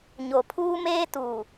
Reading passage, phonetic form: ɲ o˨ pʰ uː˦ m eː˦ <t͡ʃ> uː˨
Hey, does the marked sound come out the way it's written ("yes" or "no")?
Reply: no